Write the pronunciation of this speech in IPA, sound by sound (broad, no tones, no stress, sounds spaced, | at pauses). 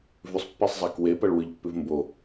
v ʉ sˤ pː e sˤ zˤ a k w e p ɐ ɭ w ɨ ʎ pː ʉ v m b o